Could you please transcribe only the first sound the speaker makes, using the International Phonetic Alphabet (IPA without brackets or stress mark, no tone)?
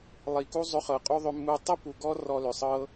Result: lˠ